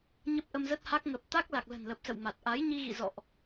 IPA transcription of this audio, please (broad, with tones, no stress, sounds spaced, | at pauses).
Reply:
ɲ ə˦˥ p̚ ʔ ə˧ m z ə˦˥ t̚ h a˦˥ k̚ ŋ ə˨˩ p̚ t̪ a˦˥ k̚ l a˨˩ k̚ l ə̤˨˩ n l ə˨˩ p̚ s ə̰˧˨ w m a˨˩ t̚ ʔ a˨˦ j ɲ i˧ ɣ ḭ˧˨ z ɔ̰˧˨ ʔ